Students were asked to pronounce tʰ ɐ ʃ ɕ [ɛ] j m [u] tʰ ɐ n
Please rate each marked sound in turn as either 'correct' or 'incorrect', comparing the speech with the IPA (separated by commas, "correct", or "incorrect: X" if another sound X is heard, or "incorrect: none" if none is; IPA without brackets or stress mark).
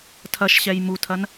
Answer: correct, correct